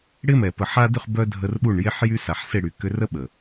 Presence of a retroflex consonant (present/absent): present